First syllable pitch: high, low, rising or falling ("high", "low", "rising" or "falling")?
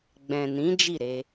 low